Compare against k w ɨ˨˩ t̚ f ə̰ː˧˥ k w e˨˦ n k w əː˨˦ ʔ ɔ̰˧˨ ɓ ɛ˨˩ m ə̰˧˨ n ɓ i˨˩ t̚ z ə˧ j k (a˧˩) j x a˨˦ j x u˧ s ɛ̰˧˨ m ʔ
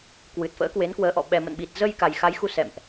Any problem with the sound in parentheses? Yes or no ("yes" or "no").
yes